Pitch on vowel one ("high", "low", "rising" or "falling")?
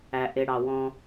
low